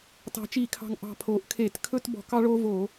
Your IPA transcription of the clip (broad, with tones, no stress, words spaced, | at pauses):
tɑ̤˩˥t͡ʃi˧˩˧kʰɑ̤˨˩ŋ ʔɑ̤˨˩pʰoː˩˧ʔkʰeː˧˩˧t kʰɵ˦tbɔ̤˧˩˧ kɑ˦ɭoː˦voː˧˩˧